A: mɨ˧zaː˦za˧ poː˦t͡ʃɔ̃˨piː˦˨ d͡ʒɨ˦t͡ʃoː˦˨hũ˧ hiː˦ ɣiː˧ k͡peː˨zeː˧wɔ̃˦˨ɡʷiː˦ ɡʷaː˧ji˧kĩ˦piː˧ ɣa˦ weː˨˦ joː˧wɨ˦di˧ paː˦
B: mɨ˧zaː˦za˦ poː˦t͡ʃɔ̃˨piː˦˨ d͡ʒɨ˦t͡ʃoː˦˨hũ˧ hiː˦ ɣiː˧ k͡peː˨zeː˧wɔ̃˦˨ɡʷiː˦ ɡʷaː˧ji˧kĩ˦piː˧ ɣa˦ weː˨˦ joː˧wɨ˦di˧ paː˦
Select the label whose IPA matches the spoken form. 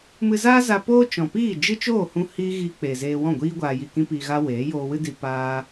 A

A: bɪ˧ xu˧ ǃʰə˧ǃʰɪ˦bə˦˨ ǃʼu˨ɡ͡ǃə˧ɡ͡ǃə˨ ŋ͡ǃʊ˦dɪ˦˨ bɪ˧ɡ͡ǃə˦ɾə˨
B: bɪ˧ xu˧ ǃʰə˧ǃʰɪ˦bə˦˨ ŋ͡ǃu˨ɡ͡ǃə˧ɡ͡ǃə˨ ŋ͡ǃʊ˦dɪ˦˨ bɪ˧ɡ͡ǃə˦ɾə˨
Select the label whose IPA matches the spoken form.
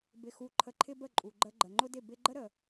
A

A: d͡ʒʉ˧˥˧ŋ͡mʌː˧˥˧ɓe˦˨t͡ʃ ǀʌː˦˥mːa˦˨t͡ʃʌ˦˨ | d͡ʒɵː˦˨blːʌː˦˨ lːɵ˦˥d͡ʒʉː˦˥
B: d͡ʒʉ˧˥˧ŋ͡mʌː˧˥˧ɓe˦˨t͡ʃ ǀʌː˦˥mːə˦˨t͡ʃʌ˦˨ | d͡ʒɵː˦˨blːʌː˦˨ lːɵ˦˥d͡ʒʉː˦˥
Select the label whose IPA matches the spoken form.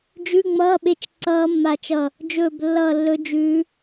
A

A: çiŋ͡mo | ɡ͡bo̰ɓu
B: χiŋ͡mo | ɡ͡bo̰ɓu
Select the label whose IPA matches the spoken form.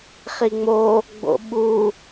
B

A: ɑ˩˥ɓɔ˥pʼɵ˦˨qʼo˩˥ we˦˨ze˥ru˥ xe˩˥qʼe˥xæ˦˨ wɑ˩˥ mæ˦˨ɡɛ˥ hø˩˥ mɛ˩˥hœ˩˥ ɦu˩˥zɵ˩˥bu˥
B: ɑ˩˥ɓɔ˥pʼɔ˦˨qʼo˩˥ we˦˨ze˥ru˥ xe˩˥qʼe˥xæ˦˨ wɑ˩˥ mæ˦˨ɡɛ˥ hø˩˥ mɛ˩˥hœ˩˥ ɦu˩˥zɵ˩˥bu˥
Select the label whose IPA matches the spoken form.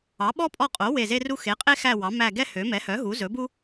B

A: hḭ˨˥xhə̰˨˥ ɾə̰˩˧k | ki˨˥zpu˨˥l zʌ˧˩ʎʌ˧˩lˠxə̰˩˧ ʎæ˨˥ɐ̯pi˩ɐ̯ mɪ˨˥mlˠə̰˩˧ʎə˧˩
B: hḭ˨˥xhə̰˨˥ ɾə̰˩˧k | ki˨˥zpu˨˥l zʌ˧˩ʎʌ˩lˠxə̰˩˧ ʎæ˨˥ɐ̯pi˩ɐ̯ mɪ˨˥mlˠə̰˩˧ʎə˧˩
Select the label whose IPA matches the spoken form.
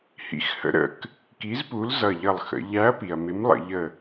A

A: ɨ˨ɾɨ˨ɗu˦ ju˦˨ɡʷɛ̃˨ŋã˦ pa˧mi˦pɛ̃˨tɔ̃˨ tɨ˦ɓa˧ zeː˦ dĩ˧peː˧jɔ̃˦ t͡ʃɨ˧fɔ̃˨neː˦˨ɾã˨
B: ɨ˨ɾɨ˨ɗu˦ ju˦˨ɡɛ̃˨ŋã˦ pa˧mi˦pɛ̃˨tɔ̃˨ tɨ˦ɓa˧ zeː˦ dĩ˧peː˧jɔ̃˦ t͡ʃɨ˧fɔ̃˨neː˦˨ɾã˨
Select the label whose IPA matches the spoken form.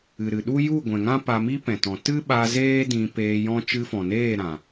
A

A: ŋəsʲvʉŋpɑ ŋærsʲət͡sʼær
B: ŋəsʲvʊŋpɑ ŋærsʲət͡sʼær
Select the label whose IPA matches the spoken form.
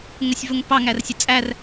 B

